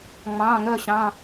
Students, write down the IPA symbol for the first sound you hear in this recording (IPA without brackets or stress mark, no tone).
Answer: ŋ͡m